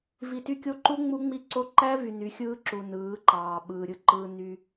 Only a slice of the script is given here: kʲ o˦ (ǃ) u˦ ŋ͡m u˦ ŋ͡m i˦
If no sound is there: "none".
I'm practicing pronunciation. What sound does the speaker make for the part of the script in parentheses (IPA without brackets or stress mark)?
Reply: ǃ